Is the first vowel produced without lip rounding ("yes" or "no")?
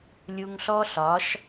no